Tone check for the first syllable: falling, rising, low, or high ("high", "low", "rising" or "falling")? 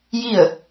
falling